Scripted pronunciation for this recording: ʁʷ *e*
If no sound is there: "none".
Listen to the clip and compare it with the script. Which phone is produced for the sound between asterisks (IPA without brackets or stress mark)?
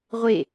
e